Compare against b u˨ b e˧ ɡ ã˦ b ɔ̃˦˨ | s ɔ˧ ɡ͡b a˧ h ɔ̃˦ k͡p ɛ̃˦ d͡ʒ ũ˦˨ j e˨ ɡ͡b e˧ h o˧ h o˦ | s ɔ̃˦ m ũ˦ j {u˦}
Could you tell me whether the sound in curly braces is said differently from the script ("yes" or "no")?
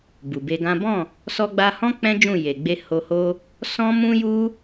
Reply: no